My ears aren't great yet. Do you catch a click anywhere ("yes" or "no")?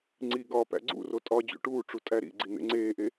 yes